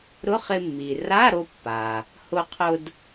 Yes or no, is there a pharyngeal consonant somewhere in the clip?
no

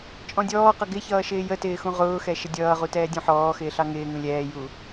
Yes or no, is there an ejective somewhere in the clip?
yes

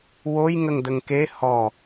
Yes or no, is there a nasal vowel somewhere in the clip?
no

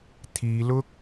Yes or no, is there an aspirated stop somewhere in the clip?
yes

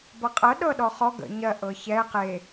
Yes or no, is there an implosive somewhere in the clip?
yes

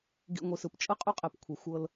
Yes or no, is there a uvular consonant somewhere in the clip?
yes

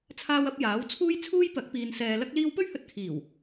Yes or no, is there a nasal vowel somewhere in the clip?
no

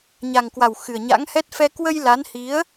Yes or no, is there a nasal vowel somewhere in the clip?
no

